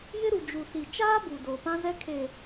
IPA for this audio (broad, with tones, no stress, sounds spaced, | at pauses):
j ɪ˦ ɾ u˨ d͡ʒ u˨ s i˨ t͡ʃ aː˦ b u˨ d o˨ p ã˦ z ɛ˦ kʰ e˨